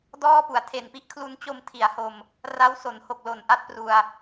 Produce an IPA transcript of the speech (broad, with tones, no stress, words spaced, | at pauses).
dɔː˥˩pu˩˦a̯ tʰe˨˩npi˦˥ʔkʰlu˧n t͡ɕo˧mtʰi˩˦a̯ho˧m | ra˦˥w so˩˦nho˨˩k̚ lo˨˩nʔa˦˥t̚pru˧a̯